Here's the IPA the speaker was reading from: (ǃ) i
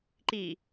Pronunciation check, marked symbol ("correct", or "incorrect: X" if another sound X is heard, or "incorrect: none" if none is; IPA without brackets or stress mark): correct